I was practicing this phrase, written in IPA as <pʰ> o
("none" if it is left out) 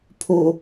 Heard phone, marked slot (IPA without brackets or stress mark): pʰ